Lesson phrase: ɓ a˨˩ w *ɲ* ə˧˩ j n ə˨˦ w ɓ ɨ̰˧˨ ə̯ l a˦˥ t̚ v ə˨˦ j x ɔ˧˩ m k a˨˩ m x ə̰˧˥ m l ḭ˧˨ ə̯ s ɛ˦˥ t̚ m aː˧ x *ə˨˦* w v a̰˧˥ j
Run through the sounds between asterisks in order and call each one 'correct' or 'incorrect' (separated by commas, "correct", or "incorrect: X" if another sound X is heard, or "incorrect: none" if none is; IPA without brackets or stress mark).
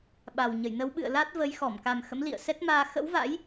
correct, incorrect: ə̰˧˥